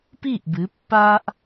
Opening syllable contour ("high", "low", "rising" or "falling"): falling